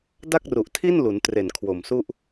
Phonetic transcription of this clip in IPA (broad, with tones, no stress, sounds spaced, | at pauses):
d a˥˩ k̚ r u˨˩ ʔ tʰ i˥˩ n l u˩˦ n t r e˨˩ n kʰ w o˨˩ m s u˥˩ ʔ